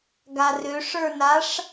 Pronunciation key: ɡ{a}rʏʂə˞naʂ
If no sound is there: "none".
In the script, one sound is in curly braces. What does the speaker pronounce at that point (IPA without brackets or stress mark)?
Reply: a